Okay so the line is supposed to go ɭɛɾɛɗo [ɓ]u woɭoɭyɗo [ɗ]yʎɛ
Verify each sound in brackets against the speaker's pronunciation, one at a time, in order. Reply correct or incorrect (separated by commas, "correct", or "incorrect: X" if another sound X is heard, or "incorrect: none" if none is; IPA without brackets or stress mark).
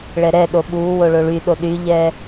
correct, correct